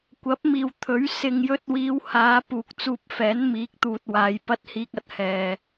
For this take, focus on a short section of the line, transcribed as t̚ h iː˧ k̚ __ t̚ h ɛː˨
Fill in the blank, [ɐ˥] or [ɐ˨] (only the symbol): ɐ˨